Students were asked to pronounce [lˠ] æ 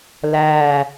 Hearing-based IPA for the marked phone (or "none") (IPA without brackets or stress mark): l